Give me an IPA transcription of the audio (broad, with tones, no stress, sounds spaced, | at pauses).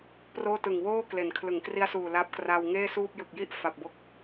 p r oː˥˩ t ɯ˨˩ ŋ w oː˥˩ k l e˩˦ n kʰ l ɯ˩˦ ŋ k r i˦˥ a̯ s uː˨˩ l a˦˥ p̚ k r a˧ w ŋ eː˥˩ s uː˥˩ p̚ j ɯ˨˩ k̚ j i˥˩ ʔ f a˨˩ p̚ b o˥˩ k̚